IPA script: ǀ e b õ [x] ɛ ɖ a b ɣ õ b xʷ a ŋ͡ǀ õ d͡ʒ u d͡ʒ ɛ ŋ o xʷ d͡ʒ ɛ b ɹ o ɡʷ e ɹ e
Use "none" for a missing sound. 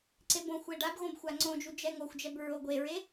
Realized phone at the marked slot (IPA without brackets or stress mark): xʷ